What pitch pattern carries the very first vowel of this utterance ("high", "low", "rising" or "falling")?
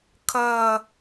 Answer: falling